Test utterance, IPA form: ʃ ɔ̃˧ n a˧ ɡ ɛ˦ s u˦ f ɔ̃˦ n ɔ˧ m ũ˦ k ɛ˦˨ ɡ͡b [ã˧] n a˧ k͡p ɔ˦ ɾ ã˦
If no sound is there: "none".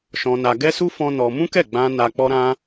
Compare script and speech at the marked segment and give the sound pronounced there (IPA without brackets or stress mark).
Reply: ã˧